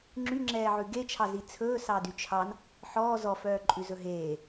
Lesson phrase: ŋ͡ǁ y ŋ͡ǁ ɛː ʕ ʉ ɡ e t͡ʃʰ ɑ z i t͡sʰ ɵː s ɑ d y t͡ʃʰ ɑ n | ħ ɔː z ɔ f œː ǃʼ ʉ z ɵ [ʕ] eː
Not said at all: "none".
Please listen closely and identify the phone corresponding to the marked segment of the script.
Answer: ɦ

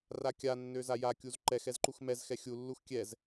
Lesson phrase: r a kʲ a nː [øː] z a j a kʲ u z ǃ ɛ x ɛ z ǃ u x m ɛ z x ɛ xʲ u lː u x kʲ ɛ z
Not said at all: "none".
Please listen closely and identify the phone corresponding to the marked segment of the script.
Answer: ø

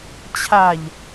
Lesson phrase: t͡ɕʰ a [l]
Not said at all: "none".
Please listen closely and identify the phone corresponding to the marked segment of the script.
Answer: ʎ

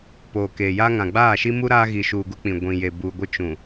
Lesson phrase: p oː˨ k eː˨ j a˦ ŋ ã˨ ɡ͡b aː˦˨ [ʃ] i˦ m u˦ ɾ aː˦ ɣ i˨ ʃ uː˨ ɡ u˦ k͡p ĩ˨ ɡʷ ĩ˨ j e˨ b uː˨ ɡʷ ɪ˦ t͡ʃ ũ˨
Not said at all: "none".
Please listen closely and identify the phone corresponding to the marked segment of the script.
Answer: ʃ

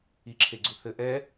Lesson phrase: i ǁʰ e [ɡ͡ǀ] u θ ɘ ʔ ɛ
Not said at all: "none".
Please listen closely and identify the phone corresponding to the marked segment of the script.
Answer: ɡ͡ǀ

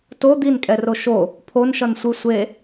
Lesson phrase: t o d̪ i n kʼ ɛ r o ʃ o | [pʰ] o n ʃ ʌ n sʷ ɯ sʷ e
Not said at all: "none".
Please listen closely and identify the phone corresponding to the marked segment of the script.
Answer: pʰ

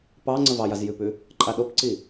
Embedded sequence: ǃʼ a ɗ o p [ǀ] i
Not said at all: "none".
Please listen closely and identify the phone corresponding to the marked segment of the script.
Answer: ǀ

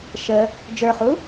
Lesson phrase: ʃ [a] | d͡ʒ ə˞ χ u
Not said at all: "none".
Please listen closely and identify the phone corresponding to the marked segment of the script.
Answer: ə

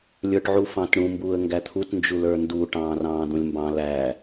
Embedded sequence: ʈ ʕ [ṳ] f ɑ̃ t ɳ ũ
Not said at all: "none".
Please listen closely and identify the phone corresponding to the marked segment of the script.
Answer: u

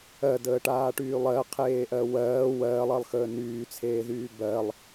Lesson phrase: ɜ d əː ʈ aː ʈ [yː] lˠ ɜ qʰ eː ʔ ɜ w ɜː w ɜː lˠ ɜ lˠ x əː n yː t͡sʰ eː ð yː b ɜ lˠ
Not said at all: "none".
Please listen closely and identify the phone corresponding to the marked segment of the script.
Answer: yː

